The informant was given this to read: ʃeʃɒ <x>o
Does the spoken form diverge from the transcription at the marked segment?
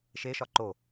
yes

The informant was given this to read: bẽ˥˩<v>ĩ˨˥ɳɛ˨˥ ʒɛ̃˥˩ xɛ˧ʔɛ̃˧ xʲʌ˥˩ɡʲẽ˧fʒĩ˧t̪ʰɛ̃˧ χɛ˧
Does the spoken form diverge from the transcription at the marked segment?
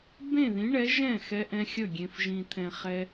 yes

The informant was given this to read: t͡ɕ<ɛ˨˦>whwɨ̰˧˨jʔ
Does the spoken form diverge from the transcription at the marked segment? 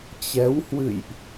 no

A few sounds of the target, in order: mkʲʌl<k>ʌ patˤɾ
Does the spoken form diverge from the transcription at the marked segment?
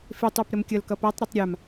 no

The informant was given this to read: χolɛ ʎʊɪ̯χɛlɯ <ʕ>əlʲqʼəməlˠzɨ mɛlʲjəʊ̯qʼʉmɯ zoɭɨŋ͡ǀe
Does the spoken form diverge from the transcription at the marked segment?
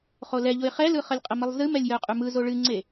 yes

